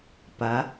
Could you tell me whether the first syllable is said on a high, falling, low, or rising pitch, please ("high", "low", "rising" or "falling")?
rising